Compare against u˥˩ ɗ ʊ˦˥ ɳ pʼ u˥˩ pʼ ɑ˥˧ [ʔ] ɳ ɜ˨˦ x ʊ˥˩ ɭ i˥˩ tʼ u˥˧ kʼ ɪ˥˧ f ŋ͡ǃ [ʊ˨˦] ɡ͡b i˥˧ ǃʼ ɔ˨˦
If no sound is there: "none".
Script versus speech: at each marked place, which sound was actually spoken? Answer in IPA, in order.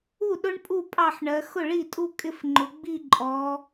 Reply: ħ, ʊ˨˦

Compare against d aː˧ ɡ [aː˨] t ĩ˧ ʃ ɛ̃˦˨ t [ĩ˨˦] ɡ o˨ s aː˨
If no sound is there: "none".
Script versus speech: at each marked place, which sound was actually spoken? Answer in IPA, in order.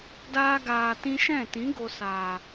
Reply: aː˨, ĩ˨˦

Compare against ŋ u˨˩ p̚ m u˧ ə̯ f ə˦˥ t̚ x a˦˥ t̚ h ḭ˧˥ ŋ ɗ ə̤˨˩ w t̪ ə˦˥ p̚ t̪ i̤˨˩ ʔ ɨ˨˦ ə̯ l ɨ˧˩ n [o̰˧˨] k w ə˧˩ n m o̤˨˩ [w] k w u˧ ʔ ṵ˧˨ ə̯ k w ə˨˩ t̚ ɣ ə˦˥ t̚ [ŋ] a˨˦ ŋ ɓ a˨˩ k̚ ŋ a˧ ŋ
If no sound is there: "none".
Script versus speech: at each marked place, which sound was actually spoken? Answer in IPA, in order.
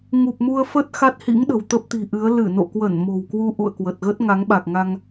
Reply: o̰˧˨, w, ŋ

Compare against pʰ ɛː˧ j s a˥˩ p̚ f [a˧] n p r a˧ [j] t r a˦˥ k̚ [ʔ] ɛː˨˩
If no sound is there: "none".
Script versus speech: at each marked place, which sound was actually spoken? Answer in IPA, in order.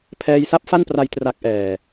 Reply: a˥˩, j, ʔ

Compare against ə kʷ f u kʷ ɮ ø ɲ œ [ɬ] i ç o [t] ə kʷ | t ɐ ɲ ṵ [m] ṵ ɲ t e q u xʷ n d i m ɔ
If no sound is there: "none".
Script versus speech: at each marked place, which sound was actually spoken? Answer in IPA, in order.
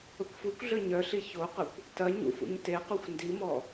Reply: ɬ, q, f

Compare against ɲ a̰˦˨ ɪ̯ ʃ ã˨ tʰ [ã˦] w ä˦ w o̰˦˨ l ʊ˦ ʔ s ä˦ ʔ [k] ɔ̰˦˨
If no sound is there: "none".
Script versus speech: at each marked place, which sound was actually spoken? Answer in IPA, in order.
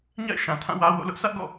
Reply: ã˦˨, ɡ

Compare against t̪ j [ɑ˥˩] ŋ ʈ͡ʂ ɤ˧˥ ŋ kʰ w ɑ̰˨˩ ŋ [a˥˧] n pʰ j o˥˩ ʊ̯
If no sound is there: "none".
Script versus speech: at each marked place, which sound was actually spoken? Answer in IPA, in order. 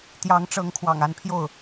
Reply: ɑ˧˥, a˥˧

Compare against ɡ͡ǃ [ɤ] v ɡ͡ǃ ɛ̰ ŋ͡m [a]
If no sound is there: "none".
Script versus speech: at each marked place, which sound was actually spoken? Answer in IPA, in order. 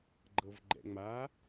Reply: ɤ, a

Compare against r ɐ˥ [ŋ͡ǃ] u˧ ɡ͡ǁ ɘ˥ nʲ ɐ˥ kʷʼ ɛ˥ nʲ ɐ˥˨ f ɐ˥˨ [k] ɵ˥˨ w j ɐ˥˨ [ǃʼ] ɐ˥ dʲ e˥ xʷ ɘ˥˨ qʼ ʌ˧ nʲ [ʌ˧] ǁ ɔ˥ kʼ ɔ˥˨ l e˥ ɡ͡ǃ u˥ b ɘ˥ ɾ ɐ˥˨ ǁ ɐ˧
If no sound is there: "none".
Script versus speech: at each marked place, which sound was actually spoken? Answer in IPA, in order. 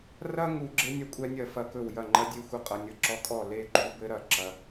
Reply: ŋ, k, ŋ͡ǃ, ʌ˧

